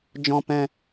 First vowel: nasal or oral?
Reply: nasal